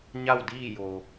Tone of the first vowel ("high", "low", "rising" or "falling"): falling